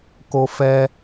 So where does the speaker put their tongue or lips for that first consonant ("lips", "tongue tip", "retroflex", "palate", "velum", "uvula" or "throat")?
velum